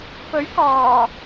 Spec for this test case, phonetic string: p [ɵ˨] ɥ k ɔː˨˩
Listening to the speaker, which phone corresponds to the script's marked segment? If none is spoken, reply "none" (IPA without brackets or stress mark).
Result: ɵ˨˥